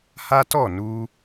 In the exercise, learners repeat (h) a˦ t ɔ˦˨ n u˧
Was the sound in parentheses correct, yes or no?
yes